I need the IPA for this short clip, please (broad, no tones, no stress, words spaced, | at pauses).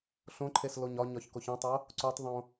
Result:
ɬõǃʰes loɲɒɲɒç koçĩtˤo | ǀutˤðˤõ